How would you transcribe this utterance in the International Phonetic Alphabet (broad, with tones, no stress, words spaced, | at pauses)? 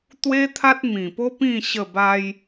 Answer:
t̪we˦t̪ʰa˦t̚mĩ˨˩po˦ pĩ˥˧ ɕə˥˧ba˦j